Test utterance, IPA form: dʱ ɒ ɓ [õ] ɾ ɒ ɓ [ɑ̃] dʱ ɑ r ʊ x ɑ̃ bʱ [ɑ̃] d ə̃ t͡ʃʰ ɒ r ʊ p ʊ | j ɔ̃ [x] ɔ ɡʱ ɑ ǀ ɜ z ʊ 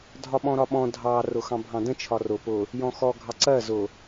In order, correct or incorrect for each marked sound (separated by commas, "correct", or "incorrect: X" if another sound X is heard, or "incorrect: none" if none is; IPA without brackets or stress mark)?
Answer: incorrect: ɔ̃, incorrect: ɔ̃, correct, correct